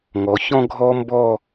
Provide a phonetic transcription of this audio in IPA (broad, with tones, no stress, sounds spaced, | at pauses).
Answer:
ŋ ɔ˩˧ ç ɔ̃˦ ɡʱ ɔ˦ m b ɔ˦˨